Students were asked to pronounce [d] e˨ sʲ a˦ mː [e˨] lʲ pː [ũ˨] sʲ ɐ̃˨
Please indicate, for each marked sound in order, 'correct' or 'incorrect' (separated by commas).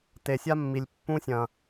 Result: incorrect, incorrect, incorrect